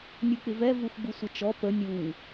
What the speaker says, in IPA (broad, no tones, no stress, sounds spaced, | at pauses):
nʲ u k͡p ɪ v ɛ v u x ɡ͡b u sʷ ɪ t͡ʃ ɔ p ə nʲ u ŋ